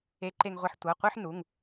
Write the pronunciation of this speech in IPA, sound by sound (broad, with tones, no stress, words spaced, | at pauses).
e˨˥ǃe˧ŋʁʷɛ˧ħ tʷɤ˩˧˩qʷɯ˧˥˧ħnu˩˧˩ŋ